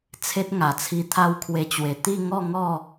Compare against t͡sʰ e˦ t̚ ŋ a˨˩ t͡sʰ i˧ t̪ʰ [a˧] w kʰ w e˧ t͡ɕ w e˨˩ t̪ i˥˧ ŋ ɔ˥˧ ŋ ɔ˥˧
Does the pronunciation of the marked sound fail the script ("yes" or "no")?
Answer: yes